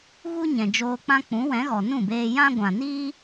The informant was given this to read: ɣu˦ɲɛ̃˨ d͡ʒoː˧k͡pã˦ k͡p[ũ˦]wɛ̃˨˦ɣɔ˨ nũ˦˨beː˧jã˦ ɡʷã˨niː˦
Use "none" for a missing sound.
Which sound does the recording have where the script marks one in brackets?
ũ˨˦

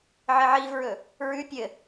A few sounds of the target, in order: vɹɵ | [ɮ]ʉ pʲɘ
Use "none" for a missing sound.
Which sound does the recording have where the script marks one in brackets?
ɹ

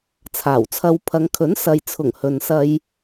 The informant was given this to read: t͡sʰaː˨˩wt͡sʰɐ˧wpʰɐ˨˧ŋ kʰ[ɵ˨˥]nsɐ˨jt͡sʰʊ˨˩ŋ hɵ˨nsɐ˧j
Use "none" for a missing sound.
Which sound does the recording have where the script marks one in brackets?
ɵ˨˥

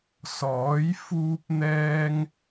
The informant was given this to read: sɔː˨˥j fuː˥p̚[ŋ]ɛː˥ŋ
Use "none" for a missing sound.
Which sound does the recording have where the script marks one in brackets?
n̪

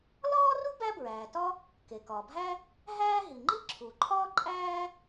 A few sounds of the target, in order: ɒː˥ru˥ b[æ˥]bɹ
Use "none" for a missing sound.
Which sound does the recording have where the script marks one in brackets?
æ˥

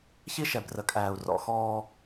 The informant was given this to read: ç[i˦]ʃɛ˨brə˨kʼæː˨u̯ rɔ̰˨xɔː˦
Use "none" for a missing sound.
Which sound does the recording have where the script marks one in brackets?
i˦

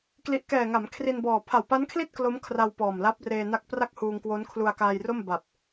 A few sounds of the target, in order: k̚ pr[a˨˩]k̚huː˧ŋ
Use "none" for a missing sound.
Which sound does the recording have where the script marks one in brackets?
a˥˩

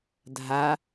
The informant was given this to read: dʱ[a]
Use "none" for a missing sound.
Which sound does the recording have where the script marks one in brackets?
a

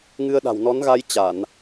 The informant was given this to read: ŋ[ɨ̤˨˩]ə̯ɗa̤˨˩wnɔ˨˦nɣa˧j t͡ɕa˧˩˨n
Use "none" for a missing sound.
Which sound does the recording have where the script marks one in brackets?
ɨ˧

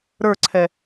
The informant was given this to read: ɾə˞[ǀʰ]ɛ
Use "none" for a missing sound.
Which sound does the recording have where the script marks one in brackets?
ǀʰ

